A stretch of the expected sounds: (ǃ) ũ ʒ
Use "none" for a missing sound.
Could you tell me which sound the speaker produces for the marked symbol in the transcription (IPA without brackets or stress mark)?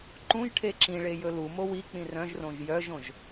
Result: ǃ